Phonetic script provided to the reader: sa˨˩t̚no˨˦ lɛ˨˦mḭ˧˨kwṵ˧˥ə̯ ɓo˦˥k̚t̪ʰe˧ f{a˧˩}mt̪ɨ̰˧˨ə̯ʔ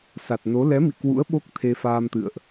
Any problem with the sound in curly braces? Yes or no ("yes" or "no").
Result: yes